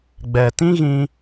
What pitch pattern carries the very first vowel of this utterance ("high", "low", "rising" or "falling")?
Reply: low